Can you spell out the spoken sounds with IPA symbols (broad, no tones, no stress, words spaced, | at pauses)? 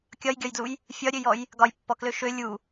kʲɒjɡʲɒjdluj | fʲɒɾʲøjɔj | ɡɒjpːɔklø ʃø lʲu